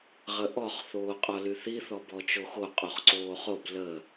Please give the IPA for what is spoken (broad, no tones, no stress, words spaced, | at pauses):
ʁəʔɔχ θoːqʼɔlyθi θɔbɔt͡ʃoxo qʼoχǀoːχob lə